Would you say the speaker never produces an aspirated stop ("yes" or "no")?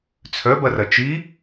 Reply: no